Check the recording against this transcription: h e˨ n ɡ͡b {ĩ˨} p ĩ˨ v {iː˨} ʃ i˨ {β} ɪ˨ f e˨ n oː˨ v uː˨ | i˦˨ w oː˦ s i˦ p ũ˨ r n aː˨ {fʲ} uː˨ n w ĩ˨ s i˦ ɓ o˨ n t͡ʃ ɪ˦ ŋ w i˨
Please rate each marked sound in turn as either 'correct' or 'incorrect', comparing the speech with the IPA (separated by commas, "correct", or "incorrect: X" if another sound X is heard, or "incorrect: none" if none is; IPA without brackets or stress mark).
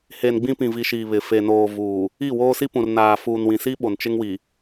incorrect: ĩ˦, incorrect: i˨, correct, incorrect: f